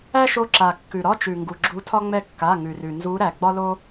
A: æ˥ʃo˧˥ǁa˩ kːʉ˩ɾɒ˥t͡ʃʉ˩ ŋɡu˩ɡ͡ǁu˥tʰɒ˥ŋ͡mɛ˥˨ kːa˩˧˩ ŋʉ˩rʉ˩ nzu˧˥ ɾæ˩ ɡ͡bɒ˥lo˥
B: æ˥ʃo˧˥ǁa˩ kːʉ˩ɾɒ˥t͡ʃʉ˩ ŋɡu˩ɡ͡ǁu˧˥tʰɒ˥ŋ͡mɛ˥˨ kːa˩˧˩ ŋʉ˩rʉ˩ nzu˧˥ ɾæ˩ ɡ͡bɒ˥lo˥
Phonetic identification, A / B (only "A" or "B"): B